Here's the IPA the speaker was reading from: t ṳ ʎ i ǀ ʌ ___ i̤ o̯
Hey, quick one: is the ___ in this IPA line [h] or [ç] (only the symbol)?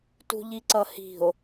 h